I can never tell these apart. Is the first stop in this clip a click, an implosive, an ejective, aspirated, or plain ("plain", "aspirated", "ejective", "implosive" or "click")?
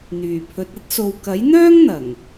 aspirated